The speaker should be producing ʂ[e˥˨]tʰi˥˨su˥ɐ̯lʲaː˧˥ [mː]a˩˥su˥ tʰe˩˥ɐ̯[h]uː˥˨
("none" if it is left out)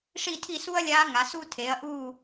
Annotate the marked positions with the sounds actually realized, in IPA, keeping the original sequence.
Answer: i˥˨, ŋ, ʔ

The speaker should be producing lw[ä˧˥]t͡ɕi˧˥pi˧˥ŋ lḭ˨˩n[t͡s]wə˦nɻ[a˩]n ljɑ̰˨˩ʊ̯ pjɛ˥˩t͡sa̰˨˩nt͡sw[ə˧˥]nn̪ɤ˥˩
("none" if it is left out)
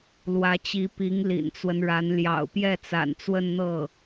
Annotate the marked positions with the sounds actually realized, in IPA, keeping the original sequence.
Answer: ä˧˥, t͡s, a˧˥, ə˥˧

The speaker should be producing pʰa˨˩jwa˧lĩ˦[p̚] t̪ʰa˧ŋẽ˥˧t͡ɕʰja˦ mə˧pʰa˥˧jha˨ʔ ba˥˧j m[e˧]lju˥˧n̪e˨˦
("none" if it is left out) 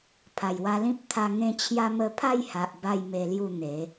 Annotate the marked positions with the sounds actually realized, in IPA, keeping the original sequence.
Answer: p̚, e˧

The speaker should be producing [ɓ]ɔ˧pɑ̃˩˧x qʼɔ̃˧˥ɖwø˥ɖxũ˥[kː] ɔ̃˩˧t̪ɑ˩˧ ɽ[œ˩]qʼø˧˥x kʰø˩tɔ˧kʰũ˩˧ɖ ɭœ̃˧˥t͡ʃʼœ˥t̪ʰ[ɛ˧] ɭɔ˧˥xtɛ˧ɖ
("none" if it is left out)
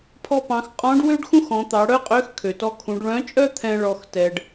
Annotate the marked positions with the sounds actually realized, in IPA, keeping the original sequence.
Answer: pʰ, x, œ˥, ɛ̃˧

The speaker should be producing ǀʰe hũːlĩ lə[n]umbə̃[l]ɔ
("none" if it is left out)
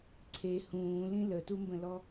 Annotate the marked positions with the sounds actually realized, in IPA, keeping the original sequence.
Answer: t, l

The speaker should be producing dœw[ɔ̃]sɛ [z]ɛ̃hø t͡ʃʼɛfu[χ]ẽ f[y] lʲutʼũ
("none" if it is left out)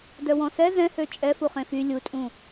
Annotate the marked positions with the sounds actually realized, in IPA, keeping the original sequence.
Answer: ɔ̃, z, χ, y

